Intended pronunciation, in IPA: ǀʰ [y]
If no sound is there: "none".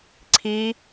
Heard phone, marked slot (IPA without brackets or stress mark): i